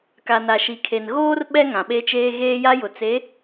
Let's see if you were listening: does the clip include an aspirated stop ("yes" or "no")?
yes